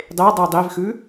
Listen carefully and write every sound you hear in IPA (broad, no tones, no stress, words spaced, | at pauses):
dˤedˤʉ dˤivxʉ